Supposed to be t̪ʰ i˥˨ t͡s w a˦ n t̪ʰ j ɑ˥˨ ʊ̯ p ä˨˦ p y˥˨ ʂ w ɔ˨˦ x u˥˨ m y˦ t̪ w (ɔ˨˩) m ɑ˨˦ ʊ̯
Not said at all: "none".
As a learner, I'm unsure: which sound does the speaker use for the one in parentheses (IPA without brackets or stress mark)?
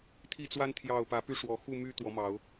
ɔ˨˦